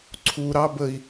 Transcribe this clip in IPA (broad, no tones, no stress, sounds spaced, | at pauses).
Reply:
ǀʰ u ɾ ɑ b ə i̯